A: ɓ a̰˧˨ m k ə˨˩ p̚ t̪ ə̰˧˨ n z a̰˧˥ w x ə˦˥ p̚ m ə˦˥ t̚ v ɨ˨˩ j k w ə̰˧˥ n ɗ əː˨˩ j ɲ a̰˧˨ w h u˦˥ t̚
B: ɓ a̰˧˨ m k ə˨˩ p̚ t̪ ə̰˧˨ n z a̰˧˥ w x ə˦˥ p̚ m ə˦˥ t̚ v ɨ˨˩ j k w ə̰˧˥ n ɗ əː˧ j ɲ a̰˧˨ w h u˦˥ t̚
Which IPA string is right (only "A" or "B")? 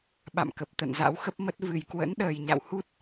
A